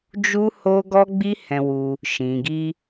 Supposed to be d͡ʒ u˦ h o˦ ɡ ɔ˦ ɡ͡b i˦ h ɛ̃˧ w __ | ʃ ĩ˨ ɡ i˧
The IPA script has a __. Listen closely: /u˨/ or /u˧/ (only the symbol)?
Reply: u˧